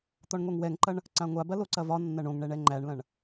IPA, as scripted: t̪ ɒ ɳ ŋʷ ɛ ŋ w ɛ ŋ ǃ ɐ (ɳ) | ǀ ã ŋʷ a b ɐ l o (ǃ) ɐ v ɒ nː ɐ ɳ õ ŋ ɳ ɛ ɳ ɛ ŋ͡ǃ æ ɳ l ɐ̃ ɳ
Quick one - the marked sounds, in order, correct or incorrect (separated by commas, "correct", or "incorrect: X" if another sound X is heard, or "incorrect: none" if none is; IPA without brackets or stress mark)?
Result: correct, incorrect: ǀ